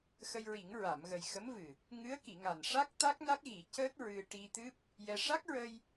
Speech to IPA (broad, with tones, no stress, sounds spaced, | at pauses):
x ə˧ j ɹ i˨˩˦ ŋ ɹ a˨˩˨ m ɣ ə˨˩ j x ə˧˥ m v ɨ˨˩ | ŋ ɨ˧˥ ə̯ k i˨˩˨ ŋ a˨˩ n ʂ a˦˥ k̚ t̪ a˦˥ k̚ n a˦˥ k̚ ɣ i˨˩˦ c əː˦˥ t̚ ɹ ɨ˧ ʈ i˧ t̪ ɨ˦˥ p̚ | j ɛ˧ ʂ a˦˥ k̚ ɹ ə˧ j